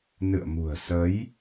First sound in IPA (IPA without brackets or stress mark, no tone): n